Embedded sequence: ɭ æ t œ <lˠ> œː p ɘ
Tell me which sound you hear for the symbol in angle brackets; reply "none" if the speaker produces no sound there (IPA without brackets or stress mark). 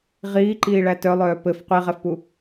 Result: lˠ